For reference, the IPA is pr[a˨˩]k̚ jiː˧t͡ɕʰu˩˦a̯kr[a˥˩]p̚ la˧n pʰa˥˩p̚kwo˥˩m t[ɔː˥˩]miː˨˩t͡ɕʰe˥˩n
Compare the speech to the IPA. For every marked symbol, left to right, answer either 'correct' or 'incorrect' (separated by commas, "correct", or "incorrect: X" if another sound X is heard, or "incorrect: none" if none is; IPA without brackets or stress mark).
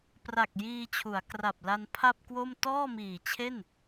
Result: correct, incorrect: a˨˩, correct